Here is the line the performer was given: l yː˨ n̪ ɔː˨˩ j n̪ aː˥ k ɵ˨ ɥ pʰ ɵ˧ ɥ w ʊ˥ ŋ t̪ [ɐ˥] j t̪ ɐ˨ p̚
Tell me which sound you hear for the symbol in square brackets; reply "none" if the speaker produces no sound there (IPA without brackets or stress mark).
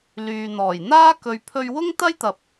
ɐ˥